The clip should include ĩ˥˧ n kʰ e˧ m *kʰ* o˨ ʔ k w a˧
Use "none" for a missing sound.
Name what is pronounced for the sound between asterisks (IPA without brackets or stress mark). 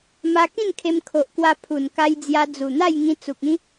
kʰ